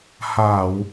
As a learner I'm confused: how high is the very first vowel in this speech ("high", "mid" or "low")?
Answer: low